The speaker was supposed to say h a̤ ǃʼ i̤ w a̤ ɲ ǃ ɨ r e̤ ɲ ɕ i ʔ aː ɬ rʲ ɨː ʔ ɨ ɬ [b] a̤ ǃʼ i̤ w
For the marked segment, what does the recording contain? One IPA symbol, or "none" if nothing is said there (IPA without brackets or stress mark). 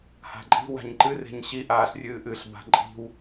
b